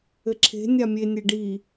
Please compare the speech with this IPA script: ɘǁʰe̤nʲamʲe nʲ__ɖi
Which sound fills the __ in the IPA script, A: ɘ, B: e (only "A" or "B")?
B